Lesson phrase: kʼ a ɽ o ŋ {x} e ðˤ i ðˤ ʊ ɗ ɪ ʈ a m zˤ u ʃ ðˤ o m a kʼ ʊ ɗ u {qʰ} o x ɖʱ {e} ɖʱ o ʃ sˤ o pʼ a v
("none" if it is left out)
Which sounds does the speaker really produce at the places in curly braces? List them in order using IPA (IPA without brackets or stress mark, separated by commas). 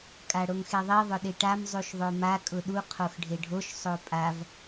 x, qʰ, e